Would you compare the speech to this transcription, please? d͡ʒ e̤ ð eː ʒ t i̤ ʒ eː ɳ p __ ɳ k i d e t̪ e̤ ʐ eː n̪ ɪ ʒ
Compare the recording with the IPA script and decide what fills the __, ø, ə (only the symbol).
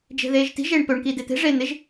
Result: ø